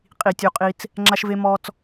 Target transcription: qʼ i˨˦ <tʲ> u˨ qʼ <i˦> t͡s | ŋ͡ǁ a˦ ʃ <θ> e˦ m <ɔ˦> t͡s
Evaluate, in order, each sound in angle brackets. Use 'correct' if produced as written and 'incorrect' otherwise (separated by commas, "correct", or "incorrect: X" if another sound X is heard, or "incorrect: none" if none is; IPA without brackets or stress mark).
correct, correct, incorrect: v, correct